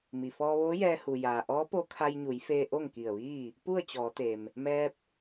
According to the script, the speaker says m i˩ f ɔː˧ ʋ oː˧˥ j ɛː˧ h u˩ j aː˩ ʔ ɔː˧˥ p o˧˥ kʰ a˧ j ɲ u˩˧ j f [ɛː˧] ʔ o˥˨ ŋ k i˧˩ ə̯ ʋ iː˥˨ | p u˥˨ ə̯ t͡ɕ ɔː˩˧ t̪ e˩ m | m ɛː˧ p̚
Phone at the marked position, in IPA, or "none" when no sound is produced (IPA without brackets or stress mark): eː˧